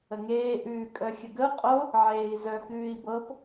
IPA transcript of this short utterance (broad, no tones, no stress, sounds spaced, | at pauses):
ə ŋ eː ʔ ʉː kʼ œ xʲ ə ɡ ə u̯ qʼ o | ʕ eː i̯ z œ k ʉː i̯ b ɤ p